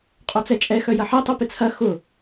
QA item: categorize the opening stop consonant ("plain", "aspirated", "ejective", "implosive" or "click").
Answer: ejective